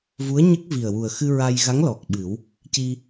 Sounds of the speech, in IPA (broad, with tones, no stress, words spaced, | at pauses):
vu˧˥ə̯ɲə˦˥k̚ vi˨˩ə̯wu˨˩ə̯xɨ˧ ɹa˧jɣa˧˥ŋ lɔ˨˩k̚ɓɨ˨˩˦w | ci˧